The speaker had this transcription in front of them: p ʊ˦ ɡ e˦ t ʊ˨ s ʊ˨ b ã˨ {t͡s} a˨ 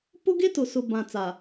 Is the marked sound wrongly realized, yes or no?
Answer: no